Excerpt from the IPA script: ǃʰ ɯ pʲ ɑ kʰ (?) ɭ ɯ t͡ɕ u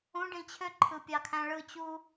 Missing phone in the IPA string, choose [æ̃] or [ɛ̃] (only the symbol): æ̃